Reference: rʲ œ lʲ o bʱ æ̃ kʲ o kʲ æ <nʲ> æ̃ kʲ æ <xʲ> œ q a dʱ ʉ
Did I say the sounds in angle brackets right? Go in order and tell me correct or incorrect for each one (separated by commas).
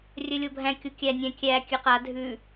correct, incorrect